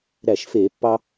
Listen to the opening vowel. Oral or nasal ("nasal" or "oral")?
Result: oral